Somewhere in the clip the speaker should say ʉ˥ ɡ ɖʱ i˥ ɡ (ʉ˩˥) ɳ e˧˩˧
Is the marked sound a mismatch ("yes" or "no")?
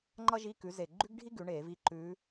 no